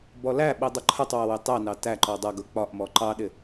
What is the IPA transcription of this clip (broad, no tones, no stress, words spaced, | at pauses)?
bɔlæɓi dˤʊǃʰətˤwʌ wɪtˤɛnɑ tæǃɔ dˤʌ ɡʊk͡pɒʔmɔ ǃɑɗɪ